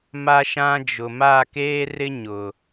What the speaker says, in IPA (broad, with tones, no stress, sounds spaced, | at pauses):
m a˦ ʃ ã˦ d͡ʒ ʊ˨ m a˦˨ k eː˦ r ɪ˦ ɲ ʊ˨